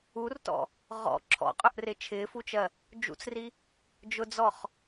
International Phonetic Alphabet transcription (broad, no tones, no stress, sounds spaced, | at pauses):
u r t ɔ̰ | ʁ ɔ̰ ǁʰ ɔ̰ qʼ ʊ ʔ r ɪ t͡ʃʰ ɪː f u t͡ʃ ɜ | d͡ʒ ṵ t͡s r i | d͡ʒ ʊ d͡z ɔ χ